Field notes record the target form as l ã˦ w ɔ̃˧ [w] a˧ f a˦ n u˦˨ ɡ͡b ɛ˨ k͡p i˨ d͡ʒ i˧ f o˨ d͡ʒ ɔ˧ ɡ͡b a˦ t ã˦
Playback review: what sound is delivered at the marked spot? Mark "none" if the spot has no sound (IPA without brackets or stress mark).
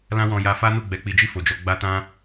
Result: j